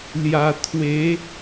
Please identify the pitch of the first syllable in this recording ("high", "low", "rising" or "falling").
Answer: low